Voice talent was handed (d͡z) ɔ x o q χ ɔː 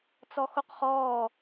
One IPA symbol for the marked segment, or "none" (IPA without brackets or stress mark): t͡s